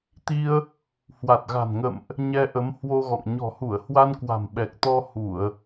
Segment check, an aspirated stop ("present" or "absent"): absent